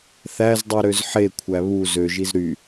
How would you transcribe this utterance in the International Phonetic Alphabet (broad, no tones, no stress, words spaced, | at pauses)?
θæzdˤu ɾøzħekʷʰæ βu zøʒiz ɾy